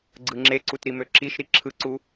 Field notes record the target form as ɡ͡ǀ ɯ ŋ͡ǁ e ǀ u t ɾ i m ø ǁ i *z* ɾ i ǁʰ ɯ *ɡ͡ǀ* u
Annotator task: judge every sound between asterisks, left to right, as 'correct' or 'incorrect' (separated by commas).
incorrect, incorrect